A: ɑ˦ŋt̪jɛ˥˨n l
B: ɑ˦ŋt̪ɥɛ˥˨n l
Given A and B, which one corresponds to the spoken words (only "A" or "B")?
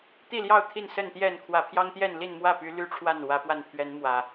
A